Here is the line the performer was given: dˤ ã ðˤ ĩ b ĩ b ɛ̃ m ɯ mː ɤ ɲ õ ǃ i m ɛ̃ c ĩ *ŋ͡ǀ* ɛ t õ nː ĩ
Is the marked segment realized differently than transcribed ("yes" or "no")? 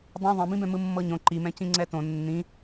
no